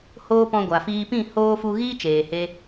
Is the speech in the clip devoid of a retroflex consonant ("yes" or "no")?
yes